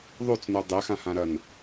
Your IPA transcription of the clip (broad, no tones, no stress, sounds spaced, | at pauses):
ðˤ u t͡s n u dˤ e x ã h ã ɾ ɐ n